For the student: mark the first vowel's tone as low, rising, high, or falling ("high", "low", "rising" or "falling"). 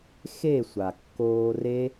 falling